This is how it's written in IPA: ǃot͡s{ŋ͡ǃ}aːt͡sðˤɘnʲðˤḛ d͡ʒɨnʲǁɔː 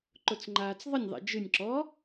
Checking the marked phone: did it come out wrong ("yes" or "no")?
no